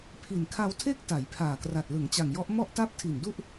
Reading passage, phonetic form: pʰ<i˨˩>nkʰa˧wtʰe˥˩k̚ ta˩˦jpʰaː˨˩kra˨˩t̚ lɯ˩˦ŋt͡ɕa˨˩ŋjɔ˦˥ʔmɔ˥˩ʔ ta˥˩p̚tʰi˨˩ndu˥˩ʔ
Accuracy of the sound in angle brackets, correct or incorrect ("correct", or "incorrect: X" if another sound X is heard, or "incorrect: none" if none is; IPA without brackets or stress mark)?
correct